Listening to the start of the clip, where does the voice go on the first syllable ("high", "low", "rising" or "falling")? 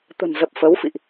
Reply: low